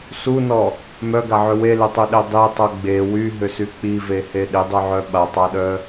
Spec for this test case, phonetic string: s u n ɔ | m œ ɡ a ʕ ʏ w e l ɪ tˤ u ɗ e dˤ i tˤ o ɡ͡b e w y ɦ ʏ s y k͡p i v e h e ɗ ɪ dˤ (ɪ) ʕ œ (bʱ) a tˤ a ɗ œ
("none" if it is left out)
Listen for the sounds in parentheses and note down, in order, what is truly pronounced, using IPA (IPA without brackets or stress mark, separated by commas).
y, ɓ